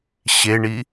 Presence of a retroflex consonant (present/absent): present